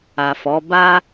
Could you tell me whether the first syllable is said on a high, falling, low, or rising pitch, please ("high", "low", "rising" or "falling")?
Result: low